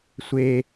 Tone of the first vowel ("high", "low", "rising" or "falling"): high